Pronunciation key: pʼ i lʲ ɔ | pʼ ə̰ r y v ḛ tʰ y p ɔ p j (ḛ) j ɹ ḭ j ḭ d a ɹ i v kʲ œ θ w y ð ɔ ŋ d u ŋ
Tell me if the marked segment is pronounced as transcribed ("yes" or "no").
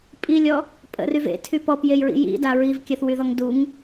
no